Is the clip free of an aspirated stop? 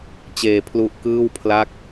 no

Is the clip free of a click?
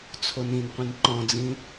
no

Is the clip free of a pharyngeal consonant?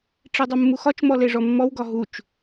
yes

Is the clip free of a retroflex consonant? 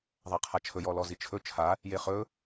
yes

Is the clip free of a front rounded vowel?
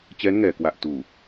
yes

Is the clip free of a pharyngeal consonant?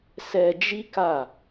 yes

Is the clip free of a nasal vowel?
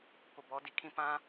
no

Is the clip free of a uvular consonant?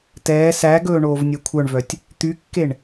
yes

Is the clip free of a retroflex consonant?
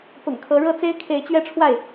no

